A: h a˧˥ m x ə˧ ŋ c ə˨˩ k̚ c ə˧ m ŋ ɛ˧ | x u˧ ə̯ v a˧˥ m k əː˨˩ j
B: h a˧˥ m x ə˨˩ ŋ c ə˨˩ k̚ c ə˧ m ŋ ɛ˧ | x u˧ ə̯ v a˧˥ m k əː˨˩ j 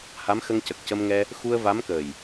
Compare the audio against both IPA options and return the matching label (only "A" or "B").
A